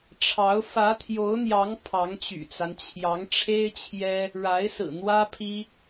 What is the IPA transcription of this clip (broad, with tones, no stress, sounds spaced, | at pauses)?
ʈ͡ʂʰ ɑ˧˥ ʊ̯ f ä˧˥ t̪ʰ j o˧˥ ʊ̯ n̪ j ɑ˧˥ ŋ pʰ ɑ˧˥ ŋ t͡ɕ y̰˨˩ t͡s a˦ n t͡ɕʰ j ɑ˧˥ ŋ ʈ͡ʂʰ e˥ ɪ̯ t͡ɕʰ j ɛ˥ | ɻ a˧˥ ɪ̯ s ɹ̩˨˩ n̪ w ä˥ pʰ i˥